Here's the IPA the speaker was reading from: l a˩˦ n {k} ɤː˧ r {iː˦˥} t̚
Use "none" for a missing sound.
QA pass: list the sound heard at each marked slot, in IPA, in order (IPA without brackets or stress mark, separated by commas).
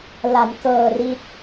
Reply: k, i˦˥